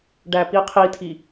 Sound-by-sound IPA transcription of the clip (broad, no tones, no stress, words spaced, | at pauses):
ɖæpiqʰitʰi